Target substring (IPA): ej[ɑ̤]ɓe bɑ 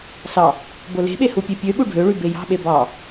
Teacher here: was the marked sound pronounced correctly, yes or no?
yes